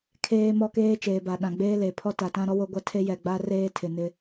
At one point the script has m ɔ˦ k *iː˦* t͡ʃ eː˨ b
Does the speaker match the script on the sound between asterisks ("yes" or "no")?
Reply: no